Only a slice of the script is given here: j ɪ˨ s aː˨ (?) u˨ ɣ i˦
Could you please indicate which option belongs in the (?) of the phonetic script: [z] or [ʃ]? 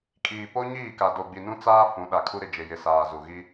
z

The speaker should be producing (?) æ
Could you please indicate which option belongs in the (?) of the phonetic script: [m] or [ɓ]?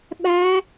ɓ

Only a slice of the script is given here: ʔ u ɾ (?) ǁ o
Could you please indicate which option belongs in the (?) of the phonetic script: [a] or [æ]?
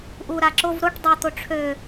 a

